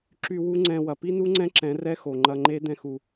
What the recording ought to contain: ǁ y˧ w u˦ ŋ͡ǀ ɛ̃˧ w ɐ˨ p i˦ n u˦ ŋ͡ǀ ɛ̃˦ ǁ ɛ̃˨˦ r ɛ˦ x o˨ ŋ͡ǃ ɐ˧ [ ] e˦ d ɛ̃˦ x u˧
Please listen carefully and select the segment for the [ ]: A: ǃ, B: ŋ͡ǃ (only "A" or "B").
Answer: B